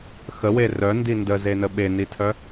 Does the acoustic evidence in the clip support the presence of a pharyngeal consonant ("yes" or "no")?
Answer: no